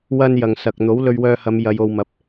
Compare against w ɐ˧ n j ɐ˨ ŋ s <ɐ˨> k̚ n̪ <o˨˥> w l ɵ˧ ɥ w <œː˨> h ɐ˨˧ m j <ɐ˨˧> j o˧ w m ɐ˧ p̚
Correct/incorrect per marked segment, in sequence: correct, correct, incorrect, correct

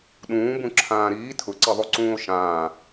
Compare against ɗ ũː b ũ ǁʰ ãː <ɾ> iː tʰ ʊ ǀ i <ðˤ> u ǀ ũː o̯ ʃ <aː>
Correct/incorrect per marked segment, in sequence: correct, correct, incorrect

